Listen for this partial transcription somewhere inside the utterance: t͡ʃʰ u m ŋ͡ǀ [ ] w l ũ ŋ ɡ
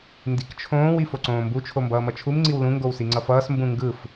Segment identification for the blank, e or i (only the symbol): i